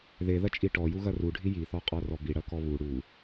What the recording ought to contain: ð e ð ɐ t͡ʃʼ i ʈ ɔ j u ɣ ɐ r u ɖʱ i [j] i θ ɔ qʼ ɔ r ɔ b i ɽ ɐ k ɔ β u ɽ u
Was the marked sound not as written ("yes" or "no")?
no